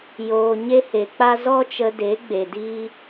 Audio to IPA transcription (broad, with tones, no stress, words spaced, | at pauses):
joː˨ ɲe˧he˨k͡pa˧ zɔ˧t͡ʃə˨ de˨˦ɡ͡be˨diː˧